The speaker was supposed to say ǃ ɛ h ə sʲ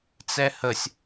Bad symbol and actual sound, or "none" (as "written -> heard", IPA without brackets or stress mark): ǃ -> t͡s